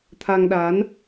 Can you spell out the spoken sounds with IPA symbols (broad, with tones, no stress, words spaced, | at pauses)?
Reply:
t̪ʰa˧ŋɗa˨˦n